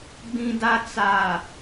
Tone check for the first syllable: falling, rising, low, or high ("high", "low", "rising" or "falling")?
low